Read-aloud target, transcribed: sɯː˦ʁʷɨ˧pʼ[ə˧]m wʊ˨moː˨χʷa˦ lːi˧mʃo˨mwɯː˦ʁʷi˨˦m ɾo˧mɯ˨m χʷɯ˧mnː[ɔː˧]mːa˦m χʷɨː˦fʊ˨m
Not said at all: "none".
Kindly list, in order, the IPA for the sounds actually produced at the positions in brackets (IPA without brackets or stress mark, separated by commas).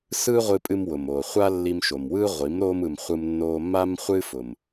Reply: ɨ˧, oː˧